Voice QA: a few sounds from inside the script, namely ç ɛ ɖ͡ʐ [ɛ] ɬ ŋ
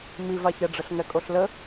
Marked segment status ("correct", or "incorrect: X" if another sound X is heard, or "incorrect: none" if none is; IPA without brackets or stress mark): incorrect: ə